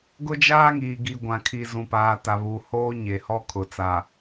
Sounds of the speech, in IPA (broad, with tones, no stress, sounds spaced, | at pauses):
ɡ ʊ˦ d͡ʒ aː˦ ŋ iː˨ ɡ i˨ ɡʷ ã˨ kʰ i˨ z ũ˨ p aː˨ t a˨ β u˨ h oː˦ ɲ e˨ h ɔ˦ kʰ ʊ˨ t͡s a˨